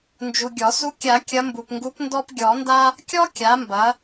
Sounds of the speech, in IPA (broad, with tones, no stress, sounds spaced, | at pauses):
n d͡ʒ u˨ ɡʲ ɔ˨˩˦ s u˧˥ kʲ a˨˩˦ kʲ ɐ˧˥ m b u˨ p ŋ ɡ u˧˥ p n d ɔ˥ p ɡʲ ɔ˨˩˦ n d a˥ | kʲ ɔ˥ kʲ a˩˥ m b ɐ˩˥